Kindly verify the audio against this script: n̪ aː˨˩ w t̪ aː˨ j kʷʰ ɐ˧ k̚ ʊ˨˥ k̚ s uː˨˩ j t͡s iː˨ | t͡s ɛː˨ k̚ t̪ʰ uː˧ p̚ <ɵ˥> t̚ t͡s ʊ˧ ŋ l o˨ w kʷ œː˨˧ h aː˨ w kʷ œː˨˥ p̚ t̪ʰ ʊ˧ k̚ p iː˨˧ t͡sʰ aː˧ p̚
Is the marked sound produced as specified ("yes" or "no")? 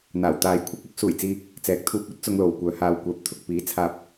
yes